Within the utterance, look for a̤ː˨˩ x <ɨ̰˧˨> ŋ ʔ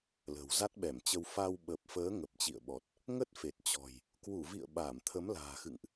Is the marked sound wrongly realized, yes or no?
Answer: no